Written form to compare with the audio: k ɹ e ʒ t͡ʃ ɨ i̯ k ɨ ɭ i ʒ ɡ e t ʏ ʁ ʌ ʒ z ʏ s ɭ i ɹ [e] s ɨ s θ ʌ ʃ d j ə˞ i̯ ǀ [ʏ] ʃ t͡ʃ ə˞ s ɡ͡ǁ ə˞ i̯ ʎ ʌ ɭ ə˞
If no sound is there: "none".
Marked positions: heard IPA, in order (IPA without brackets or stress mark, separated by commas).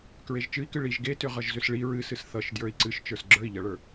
ɨ, ɨ